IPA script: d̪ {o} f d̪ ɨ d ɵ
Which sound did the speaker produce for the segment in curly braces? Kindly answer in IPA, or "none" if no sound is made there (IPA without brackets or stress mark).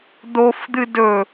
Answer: o